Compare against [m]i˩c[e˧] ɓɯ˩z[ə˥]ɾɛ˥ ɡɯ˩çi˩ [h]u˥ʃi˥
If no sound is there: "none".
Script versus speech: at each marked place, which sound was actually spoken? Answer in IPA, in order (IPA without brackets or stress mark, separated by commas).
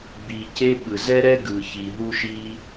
b, e˧, ɛ˥, ɦ